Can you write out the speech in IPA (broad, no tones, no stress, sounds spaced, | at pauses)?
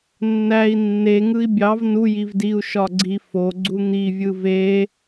nː æ i̯ nː e ŋ ɯ i̯ bʲ ɑ v n u j i v d i u̯ ʃ ɒ ɡ͡ǀ i f o ɡ͡ǀ u n̪ i vʲ ɯ v e